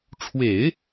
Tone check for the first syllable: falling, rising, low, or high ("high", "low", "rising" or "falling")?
low